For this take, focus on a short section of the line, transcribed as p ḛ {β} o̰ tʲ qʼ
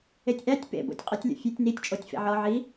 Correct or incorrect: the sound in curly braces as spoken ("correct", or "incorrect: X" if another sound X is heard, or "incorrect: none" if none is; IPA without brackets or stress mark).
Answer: incorrect: b